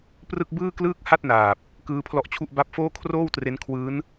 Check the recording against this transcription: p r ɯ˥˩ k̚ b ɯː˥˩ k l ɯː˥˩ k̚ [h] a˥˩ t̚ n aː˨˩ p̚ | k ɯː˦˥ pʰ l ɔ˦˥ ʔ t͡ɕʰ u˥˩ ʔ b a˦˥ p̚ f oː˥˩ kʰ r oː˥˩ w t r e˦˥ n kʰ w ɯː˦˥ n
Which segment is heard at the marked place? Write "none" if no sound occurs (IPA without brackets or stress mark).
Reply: h